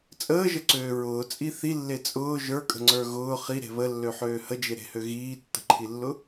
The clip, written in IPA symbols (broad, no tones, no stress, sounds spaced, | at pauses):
t͡sʼ əː ʒ ə ǀ øː ɹ ʊː t͡sʼ i θ i lː e t͡sʼ ʊː ʒ ə˞ kʼ ə̤ ŋ͡ǀ ə˞ ɣ ʊː χ i ɾ e̤ β ə lː ø ħ øː h ə d͡ʒ e ɾ e̤ h ø ɣ iː tː ə̤ ǃʰ i lː ʊ